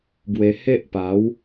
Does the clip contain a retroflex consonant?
no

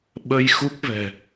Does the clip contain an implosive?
yes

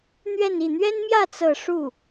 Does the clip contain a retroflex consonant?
yes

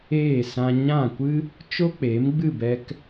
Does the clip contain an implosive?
no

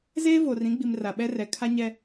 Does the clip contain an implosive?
yes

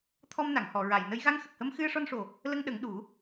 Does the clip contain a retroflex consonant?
yes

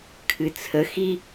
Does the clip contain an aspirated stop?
yes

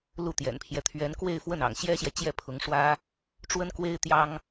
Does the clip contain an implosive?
no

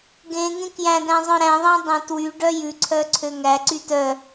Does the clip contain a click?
yes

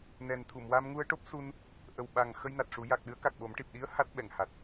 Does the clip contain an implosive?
yes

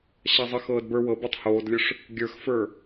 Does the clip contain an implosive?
no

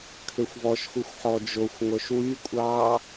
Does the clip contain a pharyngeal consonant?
yes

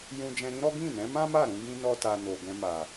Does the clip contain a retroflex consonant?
no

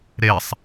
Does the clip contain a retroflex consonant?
no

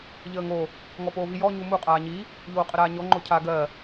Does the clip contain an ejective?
yes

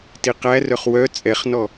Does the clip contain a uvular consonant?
yes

